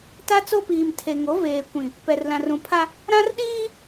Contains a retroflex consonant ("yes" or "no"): no